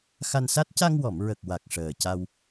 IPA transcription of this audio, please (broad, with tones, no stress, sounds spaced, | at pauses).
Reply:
x a˧ n s a˦˥ t̚ c a˧ ŋ w ɔ˨˩˨ m ɹ ə˨˩ k̚ w a˨˩ k̚ ʂ əː˨˩ c a˧ w